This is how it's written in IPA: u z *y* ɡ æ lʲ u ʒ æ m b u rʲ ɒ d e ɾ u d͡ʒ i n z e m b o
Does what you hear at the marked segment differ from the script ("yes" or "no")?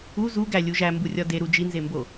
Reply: yes